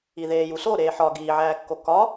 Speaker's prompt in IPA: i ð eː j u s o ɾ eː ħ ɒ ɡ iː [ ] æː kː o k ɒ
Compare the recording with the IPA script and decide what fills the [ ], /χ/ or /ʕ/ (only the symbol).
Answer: ʕ